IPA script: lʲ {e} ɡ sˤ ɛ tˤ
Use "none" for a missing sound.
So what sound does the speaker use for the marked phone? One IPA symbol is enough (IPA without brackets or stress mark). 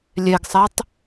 e